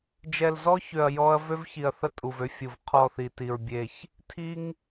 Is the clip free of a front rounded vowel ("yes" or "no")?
no